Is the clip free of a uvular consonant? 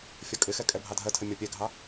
yes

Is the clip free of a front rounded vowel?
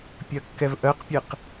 yes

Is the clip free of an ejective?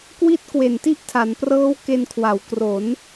yes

